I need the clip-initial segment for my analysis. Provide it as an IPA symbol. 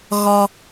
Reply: ɣ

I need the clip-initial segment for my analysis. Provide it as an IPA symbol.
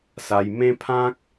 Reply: s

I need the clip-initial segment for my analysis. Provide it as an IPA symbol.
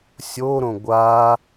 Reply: sʲ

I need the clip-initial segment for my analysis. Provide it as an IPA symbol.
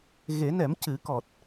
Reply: ɣ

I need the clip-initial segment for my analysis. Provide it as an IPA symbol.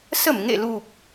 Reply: s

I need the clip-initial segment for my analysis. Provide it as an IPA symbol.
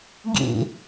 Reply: ɡ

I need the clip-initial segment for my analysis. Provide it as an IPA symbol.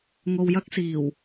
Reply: ŋ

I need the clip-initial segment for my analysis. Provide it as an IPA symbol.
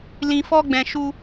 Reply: l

